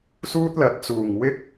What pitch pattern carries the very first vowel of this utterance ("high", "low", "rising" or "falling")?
high